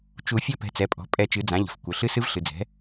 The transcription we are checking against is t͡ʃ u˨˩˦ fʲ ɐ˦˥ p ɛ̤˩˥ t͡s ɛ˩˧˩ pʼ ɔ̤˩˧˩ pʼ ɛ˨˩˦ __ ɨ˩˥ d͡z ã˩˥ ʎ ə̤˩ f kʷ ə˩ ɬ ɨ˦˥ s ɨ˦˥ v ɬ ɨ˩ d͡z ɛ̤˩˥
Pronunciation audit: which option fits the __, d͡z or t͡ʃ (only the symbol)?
t͡ʃ